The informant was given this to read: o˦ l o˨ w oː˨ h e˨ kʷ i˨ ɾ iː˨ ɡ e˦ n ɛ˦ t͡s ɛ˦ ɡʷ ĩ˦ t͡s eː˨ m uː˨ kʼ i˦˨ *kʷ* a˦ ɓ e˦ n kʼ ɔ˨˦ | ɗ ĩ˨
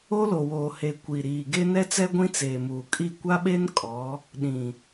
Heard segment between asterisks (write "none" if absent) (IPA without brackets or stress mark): kʷ